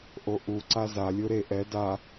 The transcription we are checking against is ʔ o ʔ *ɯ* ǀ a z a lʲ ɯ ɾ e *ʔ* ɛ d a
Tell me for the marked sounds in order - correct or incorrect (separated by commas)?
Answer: incorrect, correct